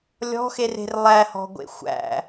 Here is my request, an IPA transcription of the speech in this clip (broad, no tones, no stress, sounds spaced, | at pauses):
lʲ ɔ̤ x e r e̤ r lˠ æ h ɔ̤ ɡʷ ḛ xʷ æ̰